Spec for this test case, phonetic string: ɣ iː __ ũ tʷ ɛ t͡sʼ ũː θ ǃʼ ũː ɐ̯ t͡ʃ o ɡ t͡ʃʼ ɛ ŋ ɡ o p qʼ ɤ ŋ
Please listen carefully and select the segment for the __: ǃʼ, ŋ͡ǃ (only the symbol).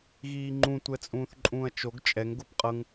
ŋ͡ǃ